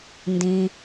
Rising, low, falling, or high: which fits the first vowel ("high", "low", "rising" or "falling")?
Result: low